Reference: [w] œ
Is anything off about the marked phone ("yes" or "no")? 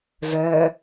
yes